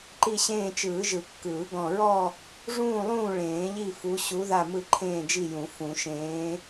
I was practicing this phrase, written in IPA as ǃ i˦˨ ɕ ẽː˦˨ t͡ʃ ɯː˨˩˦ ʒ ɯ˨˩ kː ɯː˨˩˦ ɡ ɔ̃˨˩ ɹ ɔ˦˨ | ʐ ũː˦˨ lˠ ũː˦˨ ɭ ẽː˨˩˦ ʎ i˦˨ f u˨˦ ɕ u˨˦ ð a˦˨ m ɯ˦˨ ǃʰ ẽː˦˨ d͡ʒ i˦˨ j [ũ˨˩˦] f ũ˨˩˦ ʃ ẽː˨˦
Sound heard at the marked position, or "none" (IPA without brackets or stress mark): ũ˨˩˦